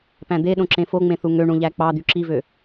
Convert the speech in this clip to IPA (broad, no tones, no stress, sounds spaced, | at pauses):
p æ̃ d̪ e ɗ õ ǁ ẽ f o ŋ͡m ẽ θ u ŋ ø ɳ ũ ʎ æ k͡p ɑ d̪ y ǁ i v ø